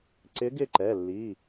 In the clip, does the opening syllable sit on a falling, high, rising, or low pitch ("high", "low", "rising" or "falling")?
rising